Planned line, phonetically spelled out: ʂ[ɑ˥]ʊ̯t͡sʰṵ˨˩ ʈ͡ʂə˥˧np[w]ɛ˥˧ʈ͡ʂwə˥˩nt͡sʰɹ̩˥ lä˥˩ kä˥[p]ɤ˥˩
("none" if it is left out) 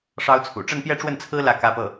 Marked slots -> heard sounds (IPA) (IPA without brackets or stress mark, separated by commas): ɑ˥, j, p